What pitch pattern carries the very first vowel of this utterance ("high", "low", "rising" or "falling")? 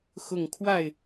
low